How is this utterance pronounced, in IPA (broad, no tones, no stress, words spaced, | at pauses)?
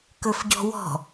kɵfɟɔ̤wɔ̤